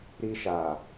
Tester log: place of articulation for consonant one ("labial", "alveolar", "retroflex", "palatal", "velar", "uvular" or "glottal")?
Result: alveolar